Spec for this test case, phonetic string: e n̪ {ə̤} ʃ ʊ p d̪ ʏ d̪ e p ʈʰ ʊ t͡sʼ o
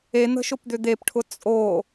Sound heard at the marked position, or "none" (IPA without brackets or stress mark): ə̤